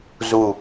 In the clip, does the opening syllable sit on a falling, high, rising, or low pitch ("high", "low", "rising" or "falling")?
falling